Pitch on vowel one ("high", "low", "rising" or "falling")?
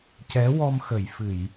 rising